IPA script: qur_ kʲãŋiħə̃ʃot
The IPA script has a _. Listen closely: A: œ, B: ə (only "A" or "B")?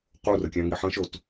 B